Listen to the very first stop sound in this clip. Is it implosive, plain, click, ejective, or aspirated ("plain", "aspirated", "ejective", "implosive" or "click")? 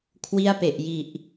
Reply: aspirated